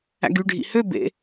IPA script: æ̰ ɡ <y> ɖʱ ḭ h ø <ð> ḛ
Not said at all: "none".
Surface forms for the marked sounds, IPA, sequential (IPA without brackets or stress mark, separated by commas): y, b